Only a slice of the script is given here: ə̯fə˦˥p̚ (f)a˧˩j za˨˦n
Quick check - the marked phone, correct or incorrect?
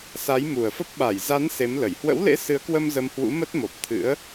incorrect